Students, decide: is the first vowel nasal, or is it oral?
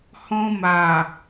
nasal